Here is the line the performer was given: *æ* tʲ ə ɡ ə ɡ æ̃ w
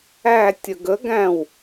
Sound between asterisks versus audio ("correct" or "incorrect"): correct